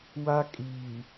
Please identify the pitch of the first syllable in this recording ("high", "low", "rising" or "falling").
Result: high